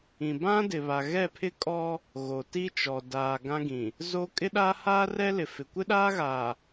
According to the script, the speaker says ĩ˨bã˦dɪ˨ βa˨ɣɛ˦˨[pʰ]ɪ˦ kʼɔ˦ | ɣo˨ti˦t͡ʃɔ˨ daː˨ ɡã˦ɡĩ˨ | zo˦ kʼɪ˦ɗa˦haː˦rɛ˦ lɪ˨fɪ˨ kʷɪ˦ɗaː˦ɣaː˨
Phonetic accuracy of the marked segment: correct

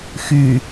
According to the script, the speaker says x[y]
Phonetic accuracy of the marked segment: correct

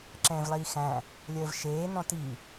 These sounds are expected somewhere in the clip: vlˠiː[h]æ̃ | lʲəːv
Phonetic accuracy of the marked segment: incorrect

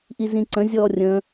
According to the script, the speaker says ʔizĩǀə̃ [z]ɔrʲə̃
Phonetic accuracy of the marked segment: incorrect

